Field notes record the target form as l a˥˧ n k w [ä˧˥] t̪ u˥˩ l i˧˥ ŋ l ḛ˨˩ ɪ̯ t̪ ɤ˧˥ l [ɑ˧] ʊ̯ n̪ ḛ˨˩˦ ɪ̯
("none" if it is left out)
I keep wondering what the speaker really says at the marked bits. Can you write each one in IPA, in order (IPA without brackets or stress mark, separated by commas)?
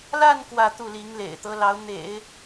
ä˥˧, ɑ˧˥